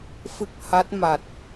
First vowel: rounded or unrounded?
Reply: unrounded